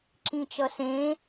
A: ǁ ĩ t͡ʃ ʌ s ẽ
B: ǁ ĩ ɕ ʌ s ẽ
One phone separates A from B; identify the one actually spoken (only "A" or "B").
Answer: A